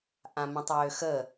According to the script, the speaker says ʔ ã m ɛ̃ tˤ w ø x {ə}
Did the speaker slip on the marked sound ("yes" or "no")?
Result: no